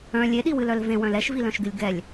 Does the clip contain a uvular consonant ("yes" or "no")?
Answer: no